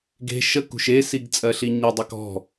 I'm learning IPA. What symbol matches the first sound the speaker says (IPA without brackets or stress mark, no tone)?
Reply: ɡ